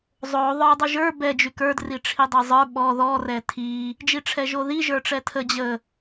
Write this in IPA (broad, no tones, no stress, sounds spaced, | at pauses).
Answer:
zˤ o ðˤ ə˞ dˤ y ʒ ə˞ b ɛ d͡ʒ y k ə˞ d r i ʈ͡ʂʰ i dˤ ə˞ zˤ ə˞ ɓ ɔ ð ɔ r ɛ tʰ i | d͡ʒ i ʈ͡ʂʰ ɛ ʒ o ð i ʒ ə˞ ʈ͡ʂ ɛ tʰ ə d͡ʑ ə